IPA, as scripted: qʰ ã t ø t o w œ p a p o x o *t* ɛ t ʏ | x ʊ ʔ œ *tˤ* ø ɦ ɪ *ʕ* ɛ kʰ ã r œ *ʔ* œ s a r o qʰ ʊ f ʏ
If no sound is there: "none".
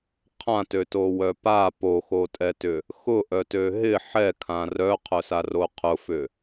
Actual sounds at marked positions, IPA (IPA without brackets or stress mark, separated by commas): tʼ, t, ħ, qʰ